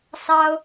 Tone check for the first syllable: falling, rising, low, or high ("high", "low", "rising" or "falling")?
high